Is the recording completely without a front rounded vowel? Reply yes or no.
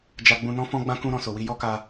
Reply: yes